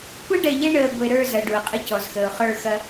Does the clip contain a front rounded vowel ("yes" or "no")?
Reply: no